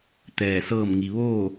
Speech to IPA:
t̪ ɛː˧˩ s ɤː˥˨ m ŋ i˩ ʋ oː˥˨

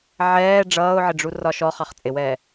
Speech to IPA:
ʕ ɛː ɖ͡ʐ ʌː ʊ̯ ʕ ɪ ɖ͡ʐ u r ɒ ʃ ɔ χ ɑ χ t͡sʼ ɪ w ɛː

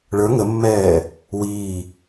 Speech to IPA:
ɭ ə˞ ŋ ə mː ɛː | w iː

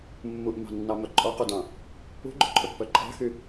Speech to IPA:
mː u ʔ m ɑ̤ nː ɑ m œ ǃʼ ɔ q u d ɑ̃ | ṳ ɡ͡ǃ ɵ ǃʼ ɵ pː œ ǃʼ ɑ̤ x y

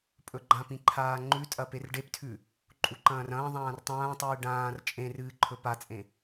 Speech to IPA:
pʼ ɵ ɡ͡ǃ ã p ĩ ǃʰ aː ŋ͡ǃ ʉ tʼ ɐ p e r ɖ e p tʰ ʉ | ǃʼ u ǃ ɐ̃ː r ɐ̃ː ðˤ ãː r tˤ ãː tˤ ɨː ɖ ãː r t͡ʃʼ ẽ r ɨː ǃʰ ɵ p a t͡sʼ ẽ

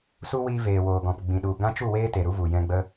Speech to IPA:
s u˦ w iː˧ v eː˨ w oː˨ ɡ ɔ̃˨ p ɡ͡b ĩ˨ ɗ u˨ ɡ ã˦ t͡ʃ u˦˨ w eː˦ t e˨ ɾ u˦ v u˨ j ɛ̃˧ ɡ͡b ə˦

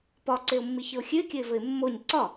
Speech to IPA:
p ɒ ǀ e ʊ̯ mː i ç ɘ ʊ̯ xʲ ʉ ɪ̯ kʲ ɘ ɪ̯ v ɘ ɪ̯ mː o ɲ ǀ ɒ

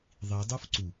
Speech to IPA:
ðˤ i dˤ u f ǀ u

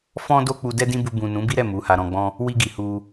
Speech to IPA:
f ɔ̃˦ d o˦ k͡p u˧ d ɛ˦ d ĩ˦ b u˧ b ũ˨ n ũ˨˦ b i˦ ɾ ɛ˦˨ m u˨˦ h a˧ ɾ ɔ̃˧ ɡ͡b ɔ̃˦ | w i˧ ɡ i˨ h u˧

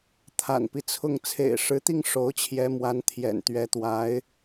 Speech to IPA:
t̪ʰ a̰˨˩ n p i˦ t͡sʰ ʊ˥˩ ŋ t͡sʰ ḛ˨˩ ɪ̯ ʂ ɻ̩˧˥ t̪ i˥˩ ŋ ʂ o˧˥ ʊ̯ t͡ɕʰ j ɛ˧˥ m w a˧˥ n t̪ʰ j ɛ̰˨˩ n t̪ ɥ ɛ˧˥ t̪ w a˧˥ ɪ̯

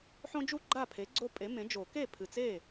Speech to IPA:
ħ õ˦ d͡ʒ u˥˩ ɡ͡ǃ a˥˩ pʰ e˩˥ ɡ͡ǀ o˦ pʼ e˩˥ m ẽ˩˥ d͡ʒ o˨˩˦ k e˥˩ pʰ ɨ˨˩ t͡s e˥˩

